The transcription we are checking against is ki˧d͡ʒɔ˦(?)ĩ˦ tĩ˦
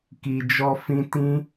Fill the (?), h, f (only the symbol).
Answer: f